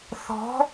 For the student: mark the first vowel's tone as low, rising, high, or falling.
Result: rising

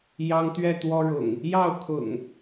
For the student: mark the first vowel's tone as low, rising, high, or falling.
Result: high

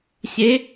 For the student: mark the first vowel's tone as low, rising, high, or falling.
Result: rising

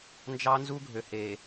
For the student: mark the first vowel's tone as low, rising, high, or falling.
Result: high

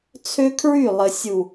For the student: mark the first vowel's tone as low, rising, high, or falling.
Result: high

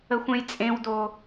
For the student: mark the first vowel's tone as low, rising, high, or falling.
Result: low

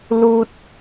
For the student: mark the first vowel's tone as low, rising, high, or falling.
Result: high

